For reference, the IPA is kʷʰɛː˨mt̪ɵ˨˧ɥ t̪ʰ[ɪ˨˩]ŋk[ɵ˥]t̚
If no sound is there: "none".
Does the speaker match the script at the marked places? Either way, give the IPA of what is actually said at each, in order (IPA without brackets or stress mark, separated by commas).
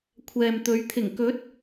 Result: ɪ˨˩, ɵ˨˥